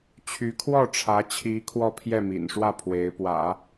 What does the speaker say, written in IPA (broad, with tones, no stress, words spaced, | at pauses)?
t͡ɕʰy˧˥kʰwɔ˥˩ʈ͡ʂʰä˧˥t͡ɕʰi˧˥ kʰwɔ˥˧pʰjɛ˥˩mḭ˨˩nʂwä˥˩ pʰwe˧˥ɪ̯pwä̰˨˩˦